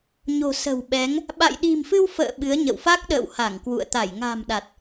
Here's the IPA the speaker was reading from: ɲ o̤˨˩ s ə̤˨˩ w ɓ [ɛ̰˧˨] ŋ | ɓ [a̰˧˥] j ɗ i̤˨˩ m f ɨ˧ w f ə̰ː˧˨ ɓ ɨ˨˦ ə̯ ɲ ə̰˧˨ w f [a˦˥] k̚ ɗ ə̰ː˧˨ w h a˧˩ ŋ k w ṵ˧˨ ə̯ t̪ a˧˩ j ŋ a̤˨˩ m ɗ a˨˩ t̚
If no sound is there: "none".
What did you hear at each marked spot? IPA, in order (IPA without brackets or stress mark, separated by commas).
ɛ˨˦, a̰˧˨, a˦˥